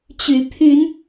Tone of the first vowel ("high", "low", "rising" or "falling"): rising